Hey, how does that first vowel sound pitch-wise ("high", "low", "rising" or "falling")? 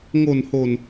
low